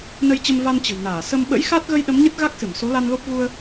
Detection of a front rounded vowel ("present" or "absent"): absent